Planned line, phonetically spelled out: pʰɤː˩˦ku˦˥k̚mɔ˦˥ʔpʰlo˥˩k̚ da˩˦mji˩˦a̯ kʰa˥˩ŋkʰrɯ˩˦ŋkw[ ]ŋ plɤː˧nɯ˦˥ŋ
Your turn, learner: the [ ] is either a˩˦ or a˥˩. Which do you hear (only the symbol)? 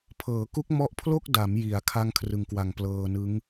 a˩˦